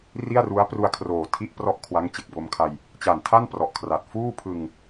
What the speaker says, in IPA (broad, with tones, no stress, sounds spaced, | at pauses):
r i˥˩ a̯ r u˦˥ a̯ p r u˧ a̯ kʰ r oː˨˩ tʰ i˥˩ ʔ p r ɔ˥˩ ʔ kʰ w a˦˥ ŋ t͡ɕ e˨˩ k̚ b o˧ m kʰ a˧ j | t͡ɕ a˨˩ n tʰ a˥˩ n p r ɔ˨˩ ʔ kʰ r a˨˩ t̚ f uː˥˩ pʰ ɯ˧ ŋ